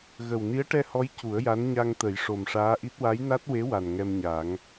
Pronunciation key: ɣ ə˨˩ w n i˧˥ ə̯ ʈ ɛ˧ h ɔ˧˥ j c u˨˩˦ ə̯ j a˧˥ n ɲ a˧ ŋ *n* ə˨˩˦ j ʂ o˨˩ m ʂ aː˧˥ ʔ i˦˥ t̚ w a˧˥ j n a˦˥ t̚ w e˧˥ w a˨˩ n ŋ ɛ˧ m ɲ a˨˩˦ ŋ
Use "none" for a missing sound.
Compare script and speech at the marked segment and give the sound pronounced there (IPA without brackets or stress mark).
t̪